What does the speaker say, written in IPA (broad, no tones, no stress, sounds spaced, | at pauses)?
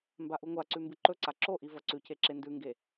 m b a ʔ u ŋʷ a ǀ ʉ m b ɨ ǃ ɵ ǀ a ǁ o ʔ i v ɐ ǀ ʉ c e ǁ e n d ʉ ŋ ɡ e